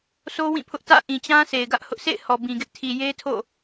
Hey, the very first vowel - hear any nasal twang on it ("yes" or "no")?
no